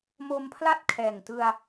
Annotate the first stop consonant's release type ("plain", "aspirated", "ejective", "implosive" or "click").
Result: aspirated